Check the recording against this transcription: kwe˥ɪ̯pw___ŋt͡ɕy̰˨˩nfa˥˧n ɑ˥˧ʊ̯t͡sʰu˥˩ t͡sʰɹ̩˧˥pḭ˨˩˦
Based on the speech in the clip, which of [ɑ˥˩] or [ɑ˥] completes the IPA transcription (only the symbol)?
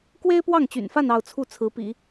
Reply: ɑ˥˩